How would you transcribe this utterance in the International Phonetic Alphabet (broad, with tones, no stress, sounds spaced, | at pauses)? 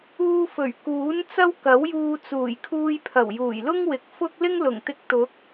uː˧ f ɵ˨˩ ɥ k uː˨˥ n t͡s ɐ˥ w k ɐ˨˥ w j uː˧ t͡s uː˨˩ j kʰ uː˧ j pʰ ɐ˨˩ w j uː˨˩ j l ʊ˥ ŋ w ɪ˨ k̚ f ʊ˥ k̚ l ɪ˥ ŋ l ʊ˨˩ ŋ t̪ ɪ˧ k̚ t̪ ʊ˨˥ k̚